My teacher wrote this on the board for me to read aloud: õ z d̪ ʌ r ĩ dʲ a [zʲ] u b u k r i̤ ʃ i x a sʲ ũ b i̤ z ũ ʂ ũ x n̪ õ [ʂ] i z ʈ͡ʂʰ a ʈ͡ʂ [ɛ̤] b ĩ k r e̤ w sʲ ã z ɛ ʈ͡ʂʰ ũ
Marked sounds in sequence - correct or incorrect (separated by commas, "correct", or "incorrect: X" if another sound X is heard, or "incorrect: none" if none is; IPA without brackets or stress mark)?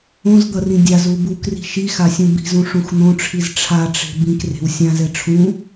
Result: incorrect: z, incorrect: ʈ͡ʂʰ, incorrect: e̤